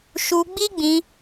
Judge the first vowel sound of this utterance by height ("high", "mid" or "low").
high